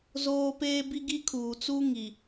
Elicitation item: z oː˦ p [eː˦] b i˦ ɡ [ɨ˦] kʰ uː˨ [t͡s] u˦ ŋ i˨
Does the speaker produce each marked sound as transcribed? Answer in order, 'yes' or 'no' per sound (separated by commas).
yes, no, yes